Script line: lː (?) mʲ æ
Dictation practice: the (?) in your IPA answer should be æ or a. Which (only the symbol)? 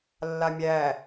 a